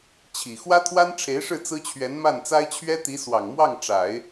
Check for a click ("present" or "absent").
absent